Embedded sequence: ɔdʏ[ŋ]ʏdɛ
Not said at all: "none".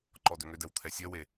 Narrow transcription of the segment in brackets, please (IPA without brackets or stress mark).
ŋ